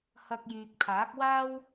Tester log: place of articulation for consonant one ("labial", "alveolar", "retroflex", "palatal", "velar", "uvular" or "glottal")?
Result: glottal